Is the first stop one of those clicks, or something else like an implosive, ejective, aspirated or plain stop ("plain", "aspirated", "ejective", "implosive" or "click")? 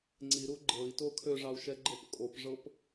click